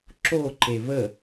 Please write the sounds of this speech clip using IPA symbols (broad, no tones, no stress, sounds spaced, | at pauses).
ǁ o ǃ e β ə